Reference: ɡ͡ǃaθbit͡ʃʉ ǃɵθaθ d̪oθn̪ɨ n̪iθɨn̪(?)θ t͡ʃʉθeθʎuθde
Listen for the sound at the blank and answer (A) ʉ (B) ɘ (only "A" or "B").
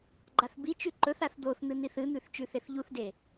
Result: A